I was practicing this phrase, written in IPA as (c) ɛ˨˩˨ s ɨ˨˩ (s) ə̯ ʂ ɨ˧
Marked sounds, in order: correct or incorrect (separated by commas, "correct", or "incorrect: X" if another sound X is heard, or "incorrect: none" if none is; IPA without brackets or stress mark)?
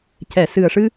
correct, incorrect: none